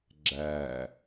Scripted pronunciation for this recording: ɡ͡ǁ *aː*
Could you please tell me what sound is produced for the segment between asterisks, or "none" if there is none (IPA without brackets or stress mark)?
æː